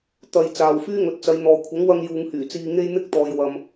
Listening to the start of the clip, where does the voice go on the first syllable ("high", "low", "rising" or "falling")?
low